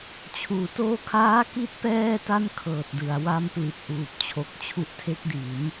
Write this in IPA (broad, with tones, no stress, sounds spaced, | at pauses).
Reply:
t͡ɕʰ uː˩˦ t oː˧ kʰ aː˦˥ k i˦˥ t̚ p ɛː˥˩ t a˥˩ n kʰ ɤː˨˩ t̚ d ɯ˩˦ a̯ w a˦˥ m p l i˨˩ t̚ ʔ uː˨˩ p̚ t͡ɕʰ o˦˥ k̚ t͡ɕʰ u˦˥ ʔ tʰ e˦˥ k̚ d i˩˦ n